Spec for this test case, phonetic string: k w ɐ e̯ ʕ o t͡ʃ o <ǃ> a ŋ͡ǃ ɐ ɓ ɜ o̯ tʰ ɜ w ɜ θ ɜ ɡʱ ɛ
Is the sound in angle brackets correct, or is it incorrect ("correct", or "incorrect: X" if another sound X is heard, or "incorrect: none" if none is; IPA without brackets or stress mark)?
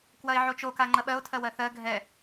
incorrect: k